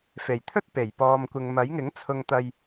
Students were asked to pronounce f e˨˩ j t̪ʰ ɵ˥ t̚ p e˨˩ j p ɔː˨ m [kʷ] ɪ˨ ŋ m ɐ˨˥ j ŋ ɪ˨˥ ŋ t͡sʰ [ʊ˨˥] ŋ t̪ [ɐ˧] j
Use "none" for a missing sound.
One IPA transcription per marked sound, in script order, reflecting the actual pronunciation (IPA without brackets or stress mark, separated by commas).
kʷ, ʊ˧, ɐ˧